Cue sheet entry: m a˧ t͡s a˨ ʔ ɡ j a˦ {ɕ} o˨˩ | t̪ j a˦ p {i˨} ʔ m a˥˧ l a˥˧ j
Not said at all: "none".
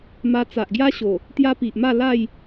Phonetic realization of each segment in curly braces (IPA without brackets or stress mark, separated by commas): ɕ, i˨